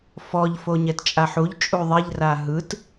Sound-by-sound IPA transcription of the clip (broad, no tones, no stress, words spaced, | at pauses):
fɔʎ foɲɛtt͡ʃʼaħuʎ t͡ʃʼuðˤeʎ raɦɯt